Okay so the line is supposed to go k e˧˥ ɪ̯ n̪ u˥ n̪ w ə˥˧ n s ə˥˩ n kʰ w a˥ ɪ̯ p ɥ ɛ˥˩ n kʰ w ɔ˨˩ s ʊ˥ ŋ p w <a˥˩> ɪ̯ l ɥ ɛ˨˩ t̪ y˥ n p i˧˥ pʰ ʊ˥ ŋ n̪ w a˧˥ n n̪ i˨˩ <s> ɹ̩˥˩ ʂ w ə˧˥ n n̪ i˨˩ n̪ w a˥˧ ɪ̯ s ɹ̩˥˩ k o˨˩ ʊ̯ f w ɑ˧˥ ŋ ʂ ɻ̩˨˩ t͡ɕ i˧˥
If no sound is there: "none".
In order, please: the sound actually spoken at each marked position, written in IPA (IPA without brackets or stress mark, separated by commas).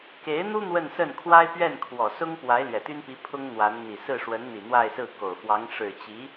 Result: a˧˥, s